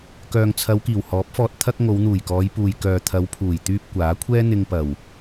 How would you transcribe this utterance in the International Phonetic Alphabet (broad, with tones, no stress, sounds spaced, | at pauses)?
k œː˨ ŋ t͡sʰ ɐ˨˧ w k iː˨˩ w h ɔː˨˥ p̚ f ɔː˧ t̚ t̪ʰ ɐ˧ k̚ ŋ o˨˧ w n̪ uː˨˩ j k ɔː˨˧ j p uː˨ j k œː˨ t̪ʰ ɐ˨˧ w pʰ uː˨˩ j t̪ yː˧ p̚ kʷ aː˨˥ kʷʰ ɛː˥ n̪ ɪ˧ ŋ p ɐ˨˩ w